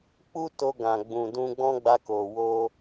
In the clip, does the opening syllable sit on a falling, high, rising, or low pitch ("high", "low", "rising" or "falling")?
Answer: high